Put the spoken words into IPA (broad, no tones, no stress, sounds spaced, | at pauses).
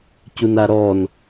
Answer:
c u n a ɾ ɔ n